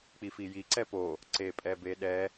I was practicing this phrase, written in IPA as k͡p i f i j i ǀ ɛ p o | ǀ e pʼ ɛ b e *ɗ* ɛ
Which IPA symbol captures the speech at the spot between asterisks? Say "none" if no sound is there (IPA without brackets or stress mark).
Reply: ɗ